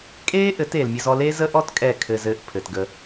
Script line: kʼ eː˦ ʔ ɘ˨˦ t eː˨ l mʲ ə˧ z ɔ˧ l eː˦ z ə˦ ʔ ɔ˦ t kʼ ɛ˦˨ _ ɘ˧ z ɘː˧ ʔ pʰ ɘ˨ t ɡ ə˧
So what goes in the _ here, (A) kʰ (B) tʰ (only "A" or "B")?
A